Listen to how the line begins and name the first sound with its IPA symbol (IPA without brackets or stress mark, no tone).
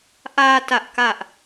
ʔ